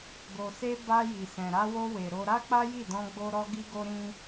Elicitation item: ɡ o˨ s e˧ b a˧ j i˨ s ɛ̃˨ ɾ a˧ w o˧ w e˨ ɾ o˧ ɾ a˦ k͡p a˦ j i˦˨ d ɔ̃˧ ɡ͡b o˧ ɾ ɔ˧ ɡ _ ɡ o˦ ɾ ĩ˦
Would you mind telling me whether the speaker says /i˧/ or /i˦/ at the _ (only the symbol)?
i˦